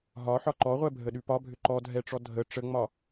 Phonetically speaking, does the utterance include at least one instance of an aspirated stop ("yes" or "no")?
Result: no